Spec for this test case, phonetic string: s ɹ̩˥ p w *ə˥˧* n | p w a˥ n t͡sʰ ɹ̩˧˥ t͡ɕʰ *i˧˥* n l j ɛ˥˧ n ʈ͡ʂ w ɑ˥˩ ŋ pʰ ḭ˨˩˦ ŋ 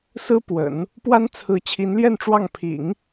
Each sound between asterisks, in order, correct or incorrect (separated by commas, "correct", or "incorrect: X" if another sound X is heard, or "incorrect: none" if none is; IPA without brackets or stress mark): incorrect: ə̰˨˩˦, correct